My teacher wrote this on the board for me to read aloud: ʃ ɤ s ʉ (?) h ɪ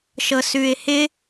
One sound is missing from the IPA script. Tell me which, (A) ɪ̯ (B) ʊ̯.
A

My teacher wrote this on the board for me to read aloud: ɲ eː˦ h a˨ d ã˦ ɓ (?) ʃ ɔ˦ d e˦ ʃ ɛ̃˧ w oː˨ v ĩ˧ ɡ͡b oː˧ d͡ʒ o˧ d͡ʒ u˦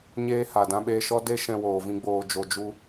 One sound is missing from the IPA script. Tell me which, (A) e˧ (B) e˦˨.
A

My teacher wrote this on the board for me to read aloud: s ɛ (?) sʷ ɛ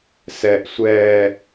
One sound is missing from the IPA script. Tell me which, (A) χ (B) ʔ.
B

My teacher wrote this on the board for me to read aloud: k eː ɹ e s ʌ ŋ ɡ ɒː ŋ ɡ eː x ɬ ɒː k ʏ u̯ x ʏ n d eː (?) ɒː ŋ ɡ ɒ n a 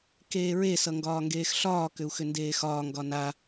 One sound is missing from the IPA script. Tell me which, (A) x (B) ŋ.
A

